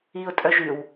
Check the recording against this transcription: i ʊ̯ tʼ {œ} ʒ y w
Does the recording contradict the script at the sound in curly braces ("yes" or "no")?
no